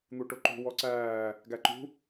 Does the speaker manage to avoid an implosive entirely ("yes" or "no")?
yes